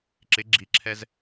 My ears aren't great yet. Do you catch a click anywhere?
yes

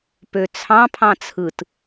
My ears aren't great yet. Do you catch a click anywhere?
no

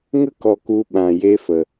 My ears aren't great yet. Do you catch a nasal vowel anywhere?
yes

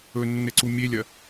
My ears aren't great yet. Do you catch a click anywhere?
yes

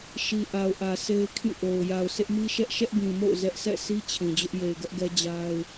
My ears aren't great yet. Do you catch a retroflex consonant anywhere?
no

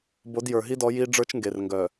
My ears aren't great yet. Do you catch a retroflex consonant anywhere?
yes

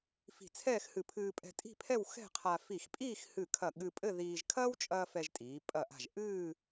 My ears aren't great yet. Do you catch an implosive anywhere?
yes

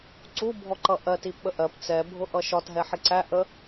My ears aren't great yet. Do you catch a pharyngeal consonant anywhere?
yes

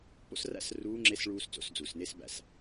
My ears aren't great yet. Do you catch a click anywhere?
yes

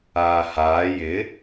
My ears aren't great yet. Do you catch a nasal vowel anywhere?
no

